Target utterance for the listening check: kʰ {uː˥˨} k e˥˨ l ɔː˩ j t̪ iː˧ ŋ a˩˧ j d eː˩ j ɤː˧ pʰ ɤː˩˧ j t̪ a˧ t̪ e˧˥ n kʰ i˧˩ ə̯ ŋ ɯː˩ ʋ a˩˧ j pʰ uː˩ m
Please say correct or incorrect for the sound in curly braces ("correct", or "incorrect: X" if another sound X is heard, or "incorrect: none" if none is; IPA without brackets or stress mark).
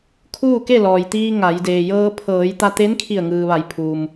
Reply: correct